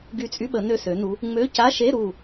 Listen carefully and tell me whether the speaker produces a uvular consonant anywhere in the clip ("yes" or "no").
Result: no